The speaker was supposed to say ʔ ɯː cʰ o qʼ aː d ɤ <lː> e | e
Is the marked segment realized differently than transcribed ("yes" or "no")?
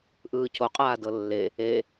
no